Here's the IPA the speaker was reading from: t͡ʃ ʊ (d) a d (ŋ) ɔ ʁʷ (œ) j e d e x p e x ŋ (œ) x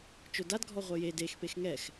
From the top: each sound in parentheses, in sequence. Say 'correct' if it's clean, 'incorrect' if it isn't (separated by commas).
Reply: correct, incorrect, correct, incorrect